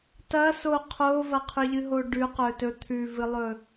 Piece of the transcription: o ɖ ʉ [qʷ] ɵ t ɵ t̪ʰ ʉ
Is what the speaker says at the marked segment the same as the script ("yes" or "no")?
no